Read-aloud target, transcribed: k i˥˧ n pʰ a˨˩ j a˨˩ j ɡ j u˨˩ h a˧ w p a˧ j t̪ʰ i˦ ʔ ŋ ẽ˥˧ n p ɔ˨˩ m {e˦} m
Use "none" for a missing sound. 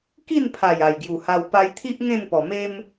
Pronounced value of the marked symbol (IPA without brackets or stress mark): e˦